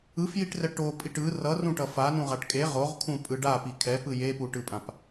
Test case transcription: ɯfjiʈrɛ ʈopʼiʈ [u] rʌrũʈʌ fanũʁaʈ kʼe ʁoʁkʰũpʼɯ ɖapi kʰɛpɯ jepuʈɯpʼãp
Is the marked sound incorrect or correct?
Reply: incorrect